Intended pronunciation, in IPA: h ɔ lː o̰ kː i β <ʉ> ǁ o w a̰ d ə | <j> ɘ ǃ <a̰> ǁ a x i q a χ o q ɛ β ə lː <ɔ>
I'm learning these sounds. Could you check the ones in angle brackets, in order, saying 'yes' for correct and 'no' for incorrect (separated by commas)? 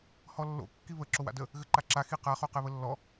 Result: no, no, no, yes